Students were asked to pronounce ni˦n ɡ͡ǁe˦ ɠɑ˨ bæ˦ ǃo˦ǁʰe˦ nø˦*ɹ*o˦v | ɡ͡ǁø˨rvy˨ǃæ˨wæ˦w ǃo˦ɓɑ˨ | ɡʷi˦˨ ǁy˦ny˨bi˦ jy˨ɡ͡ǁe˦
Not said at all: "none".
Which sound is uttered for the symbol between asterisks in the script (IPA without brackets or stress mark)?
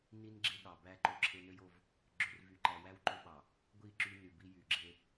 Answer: j